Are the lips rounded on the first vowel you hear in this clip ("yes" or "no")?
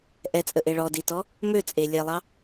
no